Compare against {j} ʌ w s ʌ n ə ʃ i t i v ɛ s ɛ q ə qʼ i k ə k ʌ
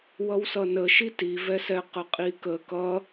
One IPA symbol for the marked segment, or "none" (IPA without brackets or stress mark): w